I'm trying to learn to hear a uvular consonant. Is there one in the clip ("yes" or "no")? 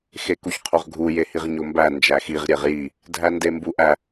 yes